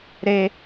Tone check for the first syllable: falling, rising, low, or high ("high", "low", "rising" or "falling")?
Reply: high